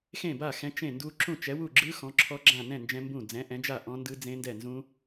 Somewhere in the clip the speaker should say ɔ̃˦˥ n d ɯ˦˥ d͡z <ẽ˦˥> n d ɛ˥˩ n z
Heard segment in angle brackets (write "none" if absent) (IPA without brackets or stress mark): ẽ˦˥